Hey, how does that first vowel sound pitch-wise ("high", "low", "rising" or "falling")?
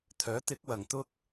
rising